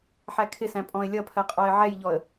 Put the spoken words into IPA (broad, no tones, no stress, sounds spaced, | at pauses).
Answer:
ħ æ kʰ ɪ s æ̃ pʼ ɔ̃ ɪ̯ lʲ ʌ pʰ ɜ qʼ ɔ ɪ̯ ʕ ɛ j ʎ ɔ ə̯